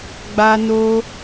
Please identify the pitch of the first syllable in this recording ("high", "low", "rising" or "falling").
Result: high